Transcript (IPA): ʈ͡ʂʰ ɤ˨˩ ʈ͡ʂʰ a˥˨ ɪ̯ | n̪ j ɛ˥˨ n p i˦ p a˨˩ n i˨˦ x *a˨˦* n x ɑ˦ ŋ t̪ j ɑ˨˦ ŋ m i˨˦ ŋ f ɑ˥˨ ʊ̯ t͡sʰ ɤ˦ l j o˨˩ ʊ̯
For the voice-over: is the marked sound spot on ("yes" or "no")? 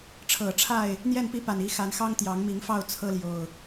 yes